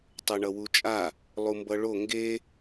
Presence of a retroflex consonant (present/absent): present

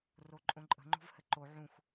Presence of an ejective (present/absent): present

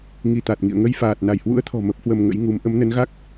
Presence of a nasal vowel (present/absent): absent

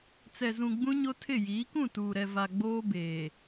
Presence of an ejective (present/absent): absent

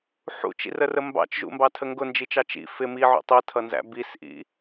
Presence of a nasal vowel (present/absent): absent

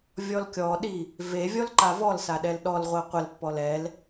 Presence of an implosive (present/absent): present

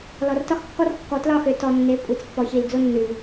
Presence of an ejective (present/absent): present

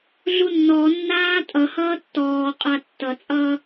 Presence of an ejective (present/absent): present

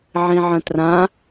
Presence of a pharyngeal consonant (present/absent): present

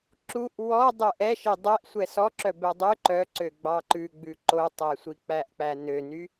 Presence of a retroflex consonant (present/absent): absent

